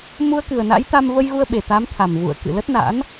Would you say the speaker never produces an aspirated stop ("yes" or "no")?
no